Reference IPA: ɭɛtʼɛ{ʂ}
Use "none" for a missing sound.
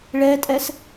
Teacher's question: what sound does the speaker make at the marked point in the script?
s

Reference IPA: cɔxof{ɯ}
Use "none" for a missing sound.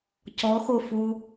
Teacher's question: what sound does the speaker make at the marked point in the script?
u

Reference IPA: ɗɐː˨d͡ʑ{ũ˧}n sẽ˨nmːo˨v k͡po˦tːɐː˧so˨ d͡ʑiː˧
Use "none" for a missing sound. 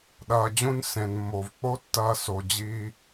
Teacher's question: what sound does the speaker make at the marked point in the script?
ũ˧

